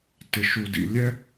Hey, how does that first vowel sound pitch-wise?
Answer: low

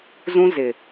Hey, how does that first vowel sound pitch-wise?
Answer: high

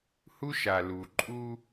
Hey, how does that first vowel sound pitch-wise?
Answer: high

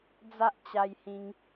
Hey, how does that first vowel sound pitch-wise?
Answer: high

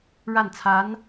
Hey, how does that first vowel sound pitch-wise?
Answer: falling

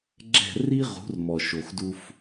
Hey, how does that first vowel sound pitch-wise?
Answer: falling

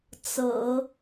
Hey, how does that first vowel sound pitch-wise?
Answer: low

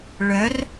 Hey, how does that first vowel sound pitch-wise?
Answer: rising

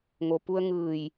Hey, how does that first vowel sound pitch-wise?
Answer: low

